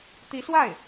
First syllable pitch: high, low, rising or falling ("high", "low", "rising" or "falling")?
rising